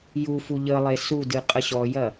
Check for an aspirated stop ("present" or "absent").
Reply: absent